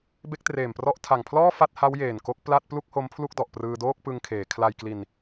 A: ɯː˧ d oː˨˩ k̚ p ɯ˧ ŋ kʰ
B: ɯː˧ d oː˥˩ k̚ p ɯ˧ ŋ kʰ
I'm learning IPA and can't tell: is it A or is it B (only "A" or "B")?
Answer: B